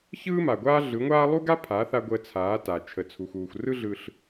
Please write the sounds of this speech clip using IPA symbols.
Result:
ç ɯː˦ m a˨ ɡʷ aː˦ ɮ ɯ˨˦ ŋʷ aː˦ lˠ u˦ ɡ a˦ pʰ a˨˦ θ a˧ ɡʷ əː˧ t͡sʰ aː˨˦ t a˨ t͡ʃʰ ə˨ t͡sʰ u˨ x uː˨ xʷ r ɯ˦ ɮ ɯ˧ ɬ

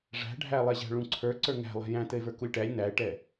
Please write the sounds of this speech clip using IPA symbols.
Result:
ʐ æ̤ ɖʱ æ lˠ ɛ ʑ æ̤ ɭ ũ ǀʰ ə˞ ǀ ə˞ ŋ æ̤ lˠ ɛ̤ j æ̃ t ɘ e̯ v ə˞ k u lʲ ʈ æ lʲ n æ e̯ ʈ ɛ

